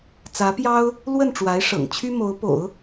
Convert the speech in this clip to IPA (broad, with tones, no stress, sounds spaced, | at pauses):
t͡s ä˧˥ p j ɑ˥ ʊ̯ | l w ə˥˩ n ʈ͡ʂ w a˧˥ ɪ̯ ʂ ɤ̰˨˩ ŋ t͡ɕʰ y˥ m o˧˥ ʊ̯ p o̰˨˩˦ ʊ̯